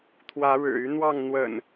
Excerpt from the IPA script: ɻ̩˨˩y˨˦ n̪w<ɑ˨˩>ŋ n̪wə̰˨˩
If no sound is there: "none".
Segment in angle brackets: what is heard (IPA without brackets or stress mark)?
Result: ɑ˥˨